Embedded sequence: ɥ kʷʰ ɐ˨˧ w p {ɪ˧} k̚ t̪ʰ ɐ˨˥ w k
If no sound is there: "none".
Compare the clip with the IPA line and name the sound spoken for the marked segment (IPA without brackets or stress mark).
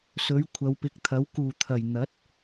ɪ˨˥